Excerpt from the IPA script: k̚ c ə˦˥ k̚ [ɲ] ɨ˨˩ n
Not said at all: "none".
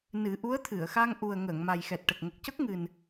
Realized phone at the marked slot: ŋ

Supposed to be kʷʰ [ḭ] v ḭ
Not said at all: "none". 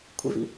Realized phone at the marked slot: ḭ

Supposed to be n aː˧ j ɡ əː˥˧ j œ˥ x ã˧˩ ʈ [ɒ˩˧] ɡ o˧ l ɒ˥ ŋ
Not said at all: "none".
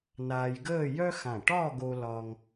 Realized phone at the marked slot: ɒ˥˧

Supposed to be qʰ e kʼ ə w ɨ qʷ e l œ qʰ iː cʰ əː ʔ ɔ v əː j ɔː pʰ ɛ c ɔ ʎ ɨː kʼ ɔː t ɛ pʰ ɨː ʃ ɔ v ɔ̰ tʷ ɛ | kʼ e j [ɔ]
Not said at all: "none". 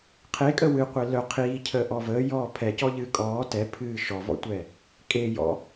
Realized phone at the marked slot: ɔ̰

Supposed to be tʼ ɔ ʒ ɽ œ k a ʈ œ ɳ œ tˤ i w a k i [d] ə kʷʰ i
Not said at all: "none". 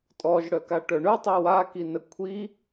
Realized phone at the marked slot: n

